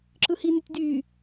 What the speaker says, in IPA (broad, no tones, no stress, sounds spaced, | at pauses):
ǁ ɯ h i n y tʲ d yː